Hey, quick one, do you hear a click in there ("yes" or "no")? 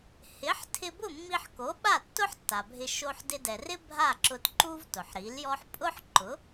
yes